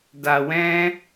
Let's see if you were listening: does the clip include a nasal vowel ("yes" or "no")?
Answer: yes